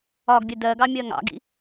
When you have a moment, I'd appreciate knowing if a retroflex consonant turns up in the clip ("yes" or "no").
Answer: no